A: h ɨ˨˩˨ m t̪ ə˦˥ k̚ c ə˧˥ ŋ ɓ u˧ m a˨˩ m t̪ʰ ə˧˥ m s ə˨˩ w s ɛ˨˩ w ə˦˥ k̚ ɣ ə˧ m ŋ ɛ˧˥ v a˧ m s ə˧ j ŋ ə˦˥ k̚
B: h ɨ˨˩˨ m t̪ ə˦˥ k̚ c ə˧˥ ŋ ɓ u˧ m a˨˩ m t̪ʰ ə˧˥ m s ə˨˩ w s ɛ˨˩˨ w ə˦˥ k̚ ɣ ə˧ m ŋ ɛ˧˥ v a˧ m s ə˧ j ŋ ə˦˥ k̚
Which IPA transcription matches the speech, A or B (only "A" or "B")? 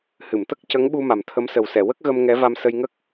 B